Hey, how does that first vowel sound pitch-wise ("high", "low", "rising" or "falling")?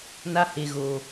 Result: high